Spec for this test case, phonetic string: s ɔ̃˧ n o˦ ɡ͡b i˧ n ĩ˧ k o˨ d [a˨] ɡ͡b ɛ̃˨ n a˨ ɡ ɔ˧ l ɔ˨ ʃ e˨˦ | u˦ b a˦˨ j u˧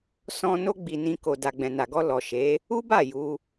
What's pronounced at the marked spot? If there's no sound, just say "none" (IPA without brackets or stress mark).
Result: a˨